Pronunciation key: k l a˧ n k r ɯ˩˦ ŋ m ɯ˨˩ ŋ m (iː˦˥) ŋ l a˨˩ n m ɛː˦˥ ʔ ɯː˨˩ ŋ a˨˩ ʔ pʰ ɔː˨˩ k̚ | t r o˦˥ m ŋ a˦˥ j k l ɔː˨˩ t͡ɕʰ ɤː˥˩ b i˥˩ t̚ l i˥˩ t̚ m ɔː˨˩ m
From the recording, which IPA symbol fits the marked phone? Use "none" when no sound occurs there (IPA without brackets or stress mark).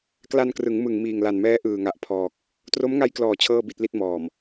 iː˨˩